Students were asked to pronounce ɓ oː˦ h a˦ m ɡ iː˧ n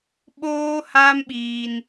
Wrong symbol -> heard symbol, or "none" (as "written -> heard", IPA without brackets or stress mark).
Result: ɡ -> ɓ